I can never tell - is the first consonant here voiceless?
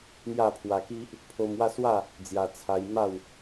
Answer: no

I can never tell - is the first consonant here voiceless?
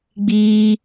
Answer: no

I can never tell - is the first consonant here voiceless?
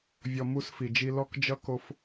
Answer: no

